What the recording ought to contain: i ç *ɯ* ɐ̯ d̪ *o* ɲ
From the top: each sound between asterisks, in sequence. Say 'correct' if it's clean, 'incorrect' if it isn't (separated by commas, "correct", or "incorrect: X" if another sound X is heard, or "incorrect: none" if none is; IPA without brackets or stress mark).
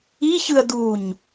correct, incorrect: u